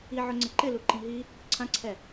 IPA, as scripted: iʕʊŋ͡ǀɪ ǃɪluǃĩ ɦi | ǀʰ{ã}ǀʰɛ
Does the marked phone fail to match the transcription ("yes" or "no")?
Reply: no